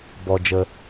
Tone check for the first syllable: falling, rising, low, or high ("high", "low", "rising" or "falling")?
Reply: low